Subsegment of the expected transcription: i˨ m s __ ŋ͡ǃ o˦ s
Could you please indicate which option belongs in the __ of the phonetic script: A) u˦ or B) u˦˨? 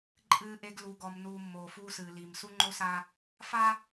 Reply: A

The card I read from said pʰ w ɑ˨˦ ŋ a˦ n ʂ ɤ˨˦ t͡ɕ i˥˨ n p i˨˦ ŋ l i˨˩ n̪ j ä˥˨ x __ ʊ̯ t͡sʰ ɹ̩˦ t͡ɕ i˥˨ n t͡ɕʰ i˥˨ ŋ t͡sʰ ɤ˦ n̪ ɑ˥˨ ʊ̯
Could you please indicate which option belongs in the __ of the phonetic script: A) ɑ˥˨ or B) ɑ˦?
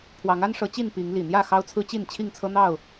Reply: B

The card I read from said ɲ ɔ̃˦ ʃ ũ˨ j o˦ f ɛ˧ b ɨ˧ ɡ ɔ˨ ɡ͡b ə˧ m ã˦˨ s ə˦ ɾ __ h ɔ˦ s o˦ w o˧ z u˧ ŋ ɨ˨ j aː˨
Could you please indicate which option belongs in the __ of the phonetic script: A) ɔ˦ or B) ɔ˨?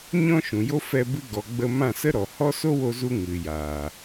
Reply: B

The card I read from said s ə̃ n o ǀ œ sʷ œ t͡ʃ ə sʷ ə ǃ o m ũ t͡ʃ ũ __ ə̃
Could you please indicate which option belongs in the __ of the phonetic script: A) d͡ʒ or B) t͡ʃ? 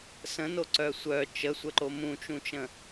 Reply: B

